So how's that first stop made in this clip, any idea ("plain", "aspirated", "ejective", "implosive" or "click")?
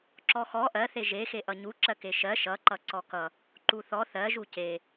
click